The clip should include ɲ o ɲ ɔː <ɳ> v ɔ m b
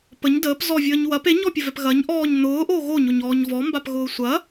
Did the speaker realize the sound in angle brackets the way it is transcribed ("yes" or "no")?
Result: no